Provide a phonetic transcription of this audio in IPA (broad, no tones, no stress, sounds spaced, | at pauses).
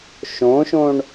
ʃ õ ʃ õ ɳ